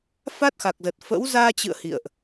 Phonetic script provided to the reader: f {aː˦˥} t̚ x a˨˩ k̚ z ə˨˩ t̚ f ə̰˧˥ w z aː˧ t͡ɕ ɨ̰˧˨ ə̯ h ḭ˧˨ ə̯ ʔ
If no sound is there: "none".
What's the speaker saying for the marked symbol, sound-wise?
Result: a˦˥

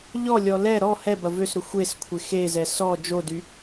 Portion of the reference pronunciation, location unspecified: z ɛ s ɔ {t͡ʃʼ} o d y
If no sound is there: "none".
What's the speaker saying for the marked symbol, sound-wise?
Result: d͡ʒ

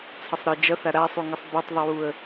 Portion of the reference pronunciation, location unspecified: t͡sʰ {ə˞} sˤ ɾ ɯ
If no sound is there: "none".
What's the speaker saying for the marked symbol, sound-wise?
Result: ʌ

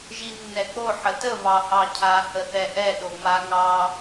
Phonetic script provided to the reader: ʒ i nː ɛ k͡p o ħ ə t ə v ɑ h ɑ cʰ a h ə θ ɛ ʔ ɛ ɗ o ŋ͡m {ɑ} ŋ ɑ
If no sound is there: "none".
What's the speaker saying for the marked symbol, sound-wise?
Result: a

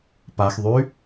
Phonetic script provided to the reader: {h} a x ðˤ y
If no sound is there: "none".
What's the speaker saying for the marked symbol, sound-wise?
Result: p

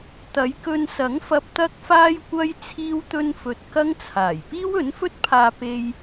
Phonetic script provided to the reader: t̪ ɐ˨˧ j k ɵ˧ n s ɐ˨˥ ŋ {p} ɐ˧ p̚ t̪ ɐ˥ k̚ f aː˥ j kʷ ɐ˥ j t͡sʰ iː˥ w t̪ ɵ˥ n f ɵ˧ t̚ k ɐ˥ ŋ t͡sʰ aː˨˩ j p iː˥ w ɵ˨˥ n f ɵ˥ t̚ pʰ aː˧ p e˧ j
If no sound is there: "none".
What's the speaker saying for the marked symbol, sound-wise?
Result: f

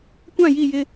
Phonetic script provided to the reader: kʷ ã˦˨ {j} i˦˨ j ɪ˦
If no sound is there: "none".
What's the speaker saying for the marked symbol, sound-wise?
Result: j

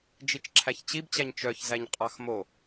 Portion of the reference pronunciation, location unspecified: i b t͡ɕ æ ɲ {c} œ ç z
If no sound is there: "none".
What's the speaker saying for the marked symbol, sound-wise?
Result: t͡ʃ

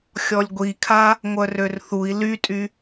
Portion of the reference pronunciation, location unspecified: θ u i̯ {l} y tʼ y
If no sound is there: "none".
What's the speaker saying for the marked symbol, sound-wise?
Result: l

